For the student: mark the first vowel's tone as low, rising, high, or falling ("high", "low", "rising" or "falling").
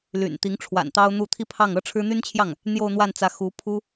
low